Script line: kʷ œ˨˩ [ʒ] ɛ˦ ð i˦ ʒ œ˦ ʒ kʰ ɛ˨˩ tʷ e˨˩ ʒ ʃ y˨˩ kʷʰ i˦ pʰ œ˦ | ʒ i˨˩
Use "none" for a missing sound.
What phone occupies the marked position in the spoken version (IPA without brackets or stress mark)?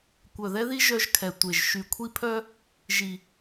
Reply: ð